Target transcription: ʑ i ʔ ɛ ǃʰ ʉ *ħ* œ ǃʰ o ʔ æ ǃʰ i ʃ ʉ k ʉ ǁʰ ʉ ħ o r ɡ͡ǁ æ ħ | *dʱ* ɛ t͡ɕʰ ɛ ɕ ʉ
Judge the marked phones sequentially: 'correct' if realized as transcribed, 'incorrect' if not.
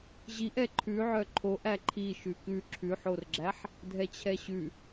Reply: incorrect: ʕ, correct

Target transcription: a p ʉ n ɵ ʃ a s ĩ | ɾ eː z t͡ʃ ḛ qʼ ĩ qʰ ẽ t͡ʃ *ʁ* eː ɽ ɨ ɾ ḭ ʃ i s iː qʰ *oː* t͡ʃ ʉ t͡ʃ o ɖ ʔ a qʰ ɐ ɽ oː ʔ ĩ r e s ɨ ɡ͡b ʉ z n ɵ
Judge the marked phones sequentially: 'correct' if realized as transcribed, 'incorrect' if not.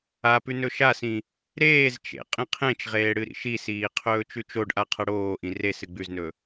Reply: correct, incorrect: ɵː

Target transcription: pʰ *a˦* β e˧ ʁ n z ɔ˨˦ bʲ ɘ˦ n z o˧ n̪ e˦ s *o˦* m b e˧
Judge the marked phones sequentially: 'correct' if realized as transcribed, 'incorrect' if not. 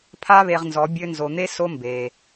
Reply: correct, correct

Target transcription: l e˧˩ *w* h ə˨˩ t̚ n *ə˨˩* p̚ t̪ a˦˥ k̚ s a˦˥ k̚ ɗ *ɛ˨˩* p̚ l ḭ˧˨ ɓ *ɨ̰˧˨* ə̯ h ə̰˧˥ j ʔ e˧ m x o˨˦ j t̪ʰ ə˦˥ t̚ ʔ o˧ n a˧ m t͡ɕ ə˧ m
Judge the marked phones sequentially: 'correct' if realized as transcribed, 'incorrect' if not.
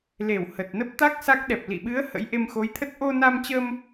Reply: correct, incorrect: ə˦˥, correct, incorrect: ɨ˨˦

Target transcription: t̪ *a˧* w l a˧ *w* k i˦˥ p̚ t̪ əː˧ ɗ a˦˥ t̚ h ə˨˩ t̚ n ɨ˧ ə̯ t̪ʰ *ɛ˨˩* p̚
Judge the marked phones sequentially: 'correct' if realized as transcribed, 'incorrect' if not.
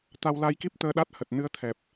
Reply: correct, incorrect: j, correct

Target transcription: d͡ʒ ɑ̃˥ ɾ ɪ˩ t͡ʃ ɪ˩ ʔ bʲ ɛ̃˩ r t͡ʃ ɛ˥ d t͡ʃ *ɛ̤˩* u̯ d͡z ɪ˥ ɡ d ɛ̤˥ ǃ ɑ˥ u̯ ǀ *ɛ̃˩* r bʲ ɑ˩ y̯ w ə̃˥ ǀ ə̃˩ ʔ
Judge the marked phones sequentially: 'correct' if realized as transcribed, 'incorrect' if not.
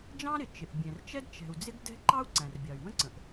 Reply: correct, incorrect: æ̃˩

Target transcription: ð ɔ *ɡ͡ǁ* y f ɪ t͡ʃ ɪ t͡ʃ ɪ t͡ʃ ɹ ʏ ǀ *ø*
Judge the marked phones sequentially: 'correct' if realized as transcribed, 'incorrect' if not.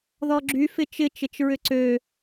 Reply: correct, correct

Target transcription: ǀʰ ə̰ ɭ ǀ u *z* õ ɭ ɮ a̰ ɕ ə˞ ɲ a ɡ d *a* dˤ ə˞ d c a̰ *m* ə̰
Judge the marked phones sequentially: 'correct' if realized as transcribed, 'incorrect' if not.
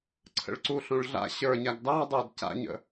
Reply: incorrect: ɬ, incorrect: ɑ, incorrect: ɲ

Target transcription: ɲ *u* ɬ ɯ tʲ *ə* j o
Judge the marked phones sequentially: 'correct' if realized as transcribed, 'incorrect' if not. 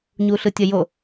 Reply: correct, correct

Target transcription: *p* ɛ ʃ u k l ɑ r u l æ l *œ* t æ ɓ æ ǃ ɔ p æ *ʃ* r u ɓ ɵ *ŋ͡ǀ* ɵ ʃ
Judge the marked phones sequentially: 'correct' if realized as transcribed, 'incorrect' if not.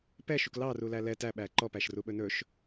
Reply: correct, incorrect: ɛ, correct, incorrect: n

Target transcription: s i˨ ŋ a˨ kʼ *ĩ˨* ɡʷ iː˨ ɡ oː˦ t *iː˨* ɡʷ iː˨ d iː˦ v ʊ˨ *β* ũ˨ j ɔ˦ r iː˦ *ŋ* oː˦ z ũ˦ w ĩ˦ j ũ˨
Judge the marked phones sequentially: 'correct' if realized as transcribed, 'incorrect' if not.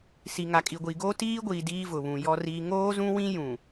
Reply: incorrect: i˨, incorrect: iː˦, correct, correct

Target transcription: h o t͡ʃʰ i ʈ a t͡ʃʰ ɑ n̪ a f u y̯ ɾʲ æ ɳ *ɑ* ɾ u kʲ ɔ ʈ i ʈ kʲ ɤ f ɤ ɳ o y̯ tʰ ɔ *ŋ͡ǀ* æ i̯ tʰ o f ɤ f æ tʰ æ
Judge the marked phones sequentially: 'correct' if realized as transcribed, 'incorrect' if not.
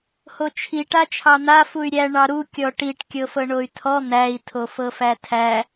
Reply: correct, incorrect: n̪

